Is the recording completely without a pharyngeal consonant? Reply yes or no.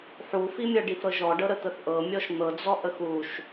no